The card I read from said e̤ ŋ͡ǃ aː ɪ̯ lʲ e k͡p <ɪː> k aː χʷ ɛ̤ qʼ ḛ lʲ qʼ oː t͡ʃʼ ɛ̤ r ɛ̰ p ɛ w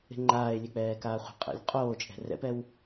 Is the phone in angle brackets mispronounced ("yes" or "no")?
yes